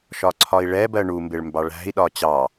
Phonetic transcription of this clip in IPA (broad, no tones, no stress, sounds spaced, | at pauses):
ʃ ɒ ǀʰ ɒ i̯ ɭ ɛ b ɜ ɳ u m b ɪ ɭ m b ɑ ɭ æ̤ i̯ ɗ ɒ t͡ɕ ɑ